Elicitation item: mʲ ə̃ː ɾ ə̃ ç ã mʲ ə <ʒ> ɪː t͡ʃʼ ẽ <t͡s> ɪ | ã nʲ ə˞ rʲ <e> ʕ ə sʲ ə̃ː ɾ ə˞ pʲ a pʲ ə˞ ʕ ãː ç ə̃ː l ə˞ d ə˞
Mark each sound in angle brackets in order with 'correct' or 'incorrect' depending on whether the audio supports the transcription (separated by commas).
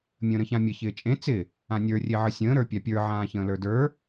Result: incorrect, correct, correct